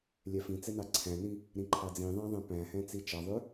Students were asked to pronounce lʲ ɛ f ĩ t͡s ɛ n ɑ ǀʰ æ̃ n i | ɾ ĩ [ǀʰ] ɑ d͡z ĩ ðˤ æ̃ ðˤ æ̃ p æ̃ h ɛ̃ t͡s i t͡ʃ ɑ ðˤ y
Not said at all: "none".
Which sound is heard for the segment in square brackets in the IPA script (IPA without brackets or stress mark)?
ǃʰ